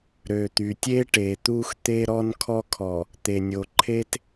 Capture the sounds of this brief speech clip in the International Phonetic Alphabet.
ɾ ø˨ t̪ y˨ tʲ e˦ ʈ e˨ t̪ u˦ x t̪ e˦ ɾ ɔ˦ n kʰ ɔ˦ kʰ ɔ˨ | t̪ e˨ nʲ o˨ ǃʰ e˦ t

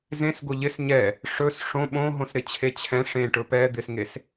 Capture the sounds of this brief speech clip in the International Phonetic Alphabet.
z ẽ s ɡ o ʎ ɪ s ɲ ɛ | ʂ ɵ s ʂ õ ɓ õ ɦ õ s ɾ ɪ t͡ɕʰ e t͡ɕʰ ɛ̃ ʂ ẽ ʈ ɵ p ɛ d̪ ɪ s ŋ e s

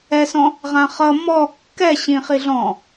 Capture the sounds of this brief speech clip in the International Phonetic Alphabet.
ɛ s ɔ̃ | ʁ ã χ ʌ m ɔ kː ɛ ɕ ĩ χ i ɮ ɔ̃

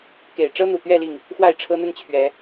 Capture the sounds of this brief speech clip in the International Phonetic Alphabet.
k e˨˩ ɪ̯ ʈ͡ʂ ɤ˦ n̪ u˨˩ t̪ ɥ ɛ˥˨ l i˥˨ ŋ | x w a˥˨ ɪ̯ ʈ͡ʂʰ ɤ˦ n̪ ə˦ n t͡ɕʰ ɥ ɛ˨˦

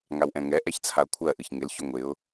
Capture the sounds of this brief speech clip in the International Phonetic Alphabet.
ŋ a w ʔ ɛ̃ ŋ ɛ ʔ ɛ ç t͡sʰ a ʊ̯ kʷʰ ɜ ʔ ɨ ç ŋ ɪ l ç ʏ ŋʷ ɪ ʊ̯

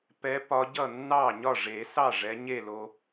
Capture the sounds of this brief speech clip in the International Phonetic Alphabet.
p ɛ˨˦ p ɒ˨˦ ɟ ʌ˥˩ nː ɑ˥˩ ɲ ɒ˥˩ ʐ e˨˩˦ s ɑ˥˩ ʐ ɛ˨˦ ɲ e˥˩ l o˨

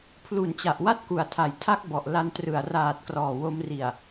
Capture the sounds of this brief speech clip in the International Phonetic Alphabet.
pʰ l u˨˩ n t͡ɕ a˨˩ ʔ w a˦˥ t̚ k u˨˩ a̯ tʰ a˨˩ j tʰ a˦˥ k̚ b ɔ˨˩ ʔ l a˧ n t r ɯ˨˩ a̯ r aː˨˩ t̚ k r ɔː˨˩ w o˧ m r i˨˩ a̯

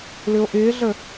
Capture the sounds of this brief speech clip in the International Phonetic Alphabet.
l ʏ o̯ ʔ ɪː ɮ ə

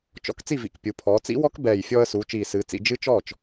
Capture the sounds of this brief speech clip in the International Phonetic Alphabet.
t͡ʃ ɔ̰˧ k t͡s i˥˩ v ḭ˨˩ k pʲ u˩˧ pʰ ɔː˩˧ t͡s ḭ˦˥ w ɔ˦˥ k b ɛː˨˩ j fʲ ɔː˧ ə̯ s uː˩˧ t͡ʃ iː˨˩ s ɨː˩˧ t͡s ḭ˩˧ d͡ʒ ɨ˦˥ t͡ʃ ɔː˥˩ t͡ʃ

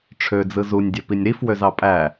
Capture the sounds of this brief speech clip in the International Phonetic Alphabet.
ʈ͡ʂʰ ø d͡z ɯ z u nʲ dʲ ø p i nʲ ɾ i f w ø z ɑ pʼ æ

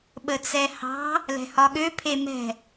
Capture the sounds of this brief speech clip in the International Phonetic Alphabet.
ɓ ə t͡s ɛ h ɑ̤ | l ɛ̤ h ɒ ɠ ø pʰ e m ɛ̤

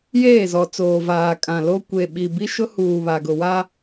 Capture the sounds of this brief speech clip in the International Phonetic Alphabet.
j eː˦˨ z ɔ˨ t͡s oː˨ v aː˨ kʼ ã˨ l o˦ kʷ e˨ ɓ i˨ b i˦ ʃ ʊ˦ h uː˨ β a˨ ɡ ʊ˨ w a˦

